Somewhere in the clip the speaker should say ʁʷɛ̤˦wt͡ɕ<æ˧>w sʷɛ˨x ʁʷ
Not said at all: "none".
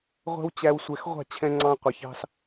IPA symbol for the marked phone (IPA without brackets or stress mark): æ˧